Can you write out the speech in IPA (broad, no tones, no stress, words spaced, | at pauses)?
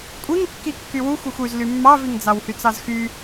kʷʼiŋkːi kːywuxʷ yxʷyz lymːɑviŋ d͡zɑwhyt͡sɑzxy